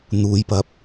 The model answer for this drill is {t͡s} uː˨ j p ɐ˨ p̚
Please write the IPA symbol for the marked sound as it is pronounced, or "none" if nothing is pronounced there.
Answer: n̪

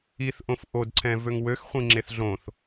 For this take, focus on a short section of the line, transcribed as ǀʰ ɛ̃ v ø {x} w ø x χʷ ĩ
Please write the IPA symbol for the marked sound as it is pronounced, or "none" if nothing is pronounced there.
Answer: ŋ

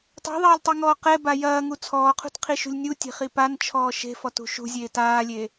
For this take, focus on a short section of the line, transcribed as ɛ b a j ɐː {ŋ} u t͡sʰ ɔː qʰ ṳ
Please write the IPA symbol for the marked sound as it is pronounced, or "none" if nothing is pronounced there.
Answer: ŋ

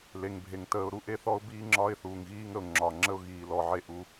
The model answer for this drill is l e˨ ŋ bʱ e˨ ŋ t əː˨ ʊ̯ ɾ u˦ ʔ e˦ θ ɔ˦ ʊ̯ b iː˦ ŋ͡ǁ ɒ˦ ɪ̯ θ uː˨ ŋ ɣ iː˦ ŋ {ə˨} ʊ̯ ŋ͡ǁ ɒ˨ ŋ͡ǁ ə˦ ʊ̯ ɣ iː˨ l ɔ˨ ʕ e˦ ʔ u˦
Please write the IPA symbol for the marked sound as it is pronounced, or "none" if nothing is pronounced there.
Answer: ə˨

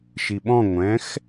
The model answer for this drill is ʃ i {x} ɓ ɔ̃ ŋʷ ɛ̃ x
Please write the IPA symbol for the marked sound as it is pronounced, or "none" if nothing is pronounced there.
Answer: none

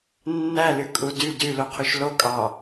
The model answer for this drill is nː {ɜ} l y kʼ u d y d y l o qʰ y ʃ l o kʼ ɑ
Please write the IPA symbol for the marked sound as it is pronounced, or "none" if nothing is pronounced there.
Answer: æ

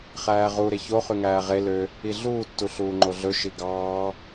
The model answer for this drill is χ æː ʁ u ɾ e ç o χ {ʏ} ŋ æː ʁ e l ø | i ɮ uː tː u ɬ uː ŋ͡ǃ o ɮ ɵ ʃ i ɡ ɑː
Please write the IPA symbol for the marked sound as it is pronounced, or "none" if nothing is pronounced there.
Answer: y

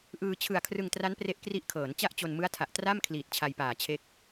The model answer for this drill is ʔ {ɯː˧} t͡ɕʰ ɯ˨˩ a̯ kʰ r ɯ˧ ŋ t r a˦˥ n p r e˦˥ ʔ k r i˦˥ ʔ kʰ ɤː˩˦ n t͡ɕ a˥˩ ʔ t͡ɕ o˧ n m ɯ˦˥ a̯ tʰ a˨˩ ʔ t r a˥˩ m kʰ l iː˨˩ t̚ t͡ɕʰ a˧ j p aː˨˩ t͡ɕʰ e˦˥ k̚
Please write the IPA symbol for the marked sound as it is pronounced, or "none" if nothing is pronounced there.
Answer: ɯː˧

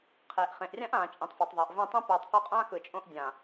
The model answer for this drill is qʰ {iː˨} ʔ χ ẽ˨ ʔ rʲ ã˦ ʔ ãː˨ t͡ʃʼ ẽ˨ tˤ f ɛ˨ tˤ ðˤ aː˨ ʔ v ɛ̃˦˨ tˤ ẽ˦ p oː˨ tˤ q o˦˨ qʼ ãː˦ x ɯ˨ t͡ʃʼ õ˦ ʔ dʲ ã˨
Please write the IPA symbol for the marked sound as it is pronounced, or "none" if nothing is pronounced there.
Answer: eː˨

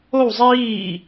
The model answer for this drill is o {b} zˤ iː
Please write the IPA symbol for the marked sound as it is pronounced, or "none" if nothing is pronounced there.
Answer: w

